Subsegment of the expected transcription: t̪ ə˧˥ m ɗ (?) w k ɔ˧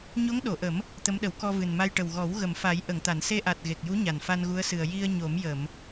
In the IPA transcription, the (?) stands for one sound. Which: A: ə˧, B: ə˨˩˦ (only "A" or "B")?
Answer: B